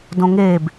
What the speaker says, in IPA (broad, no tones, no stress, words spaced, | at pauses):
dõŋeb